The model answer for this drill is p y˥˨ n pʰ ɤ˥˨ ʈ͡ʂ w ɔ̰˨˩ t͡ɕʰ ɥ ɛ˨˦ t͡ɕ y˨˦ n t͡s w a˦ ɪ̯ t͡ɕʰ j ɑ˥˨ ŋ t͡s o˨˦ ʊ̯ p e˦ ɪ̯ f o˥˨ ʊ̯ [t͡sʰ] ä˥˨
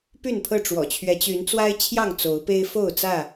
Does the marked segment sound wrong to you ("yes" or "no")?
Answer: yes